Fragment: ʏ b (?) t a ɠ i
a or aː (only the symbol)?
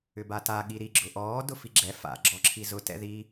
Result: a